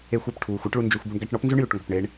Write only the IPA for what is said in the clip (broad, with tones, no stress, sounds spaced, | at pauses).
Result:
e˧ xʷ ʉ˩ p ʈʰ uː˩ xʷ a˥ ʈ ɭ u˧ n d͡ʒ ø˧ xʷ b u˧ ɳ ɡ a˧ ʈ ɳ ɔ˥ p n z ʉ˥ ɳ j ʉ˩ ʈ ŋ ɔ̤˩ p ɳ e˧ ɳ